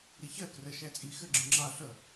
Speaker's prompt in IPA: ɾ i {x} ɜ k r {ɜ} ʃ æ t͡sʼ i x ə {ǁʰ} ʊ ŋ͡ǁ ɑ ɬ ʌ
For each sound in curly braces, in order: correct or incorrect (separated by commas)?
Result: incorrect, correct, incorrect